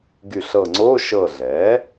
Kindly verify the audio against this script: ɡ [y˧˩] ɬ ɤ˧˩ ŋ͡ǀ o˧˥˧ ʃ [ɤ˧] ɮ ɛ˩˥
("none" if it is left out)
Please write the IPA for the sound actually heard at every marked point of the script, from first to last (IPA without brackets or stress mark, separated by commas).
y˧˩, ɤ˧˩